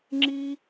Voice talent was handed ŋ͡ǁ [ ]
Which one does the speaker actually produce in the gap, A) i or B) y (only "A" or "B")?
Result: A